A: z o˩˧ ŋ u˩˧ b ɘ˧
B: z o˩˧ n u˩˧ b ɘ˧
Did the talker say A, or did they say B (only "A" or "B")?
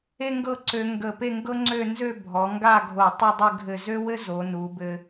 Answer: B